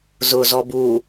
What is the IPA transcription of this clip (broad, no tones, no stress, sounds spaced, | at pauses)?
z ʊ z ɔ b u